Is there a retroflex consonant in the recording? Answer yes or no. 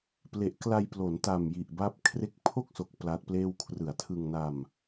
no